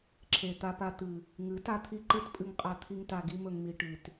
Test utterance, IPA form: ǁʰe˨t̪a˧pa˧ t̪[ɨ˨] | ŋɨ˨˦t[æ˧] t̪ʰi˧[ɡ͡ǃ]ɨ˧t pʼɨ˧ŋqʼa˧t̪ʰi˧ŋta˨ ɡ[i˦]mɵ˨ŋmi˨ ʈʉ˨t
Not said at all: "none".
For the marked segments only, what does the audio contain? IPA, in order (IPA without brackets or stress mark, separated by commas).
ɨ˨, a˧, ǃ, i˧